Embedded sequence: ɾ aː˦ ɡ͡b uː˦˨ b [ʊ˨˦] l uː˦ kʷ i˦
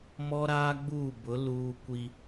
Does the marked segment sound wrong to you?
no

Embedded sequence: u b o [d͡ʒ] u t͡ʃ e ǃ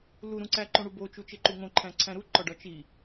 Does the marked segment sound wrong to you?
yes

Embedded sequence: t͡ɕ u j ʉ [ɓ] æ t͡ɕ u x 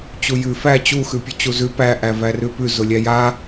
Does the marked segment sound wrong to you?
yes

